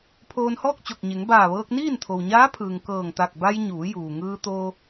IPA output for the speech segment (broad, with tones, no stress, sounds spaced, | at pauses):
pʰ oː˧ n h ɔː˥˨ k̚ t͡ɕ o˧˩ k̚ ɲ e˩˧ ŋ b aː˧˩ ʋ ɤː˧ k̚ n iː˥˨ n t̪ʰ o˩ w ɲ aː˧˥ pʰ ɯː˩ ŋ k ɤː˧˩ ŋ t̪ a˧˩ k̚ b a˧ j ɲ uː˩˧ j uː˩ ŋ ɯː˧ t̪ oː˧